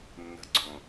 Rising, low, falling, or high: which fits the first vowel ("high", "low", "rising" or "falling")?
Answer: low